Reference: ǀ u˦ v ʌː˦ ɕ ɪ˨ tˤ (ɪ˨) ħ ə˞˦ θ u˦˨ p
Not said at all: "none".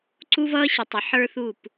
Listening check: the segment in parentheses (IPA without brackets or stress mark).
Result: ɪ˨